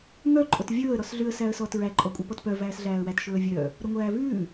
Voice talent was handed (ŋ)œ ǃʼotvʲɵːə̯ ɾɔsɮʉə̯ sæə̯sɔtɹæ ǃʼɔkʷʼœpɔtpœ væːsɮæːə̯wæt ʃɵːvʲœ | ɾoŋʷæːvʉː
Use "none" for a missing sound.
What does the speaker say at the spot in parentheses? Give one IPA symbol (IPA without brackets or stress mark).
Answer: ŋ